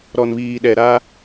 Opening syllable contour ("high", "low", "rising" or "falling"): low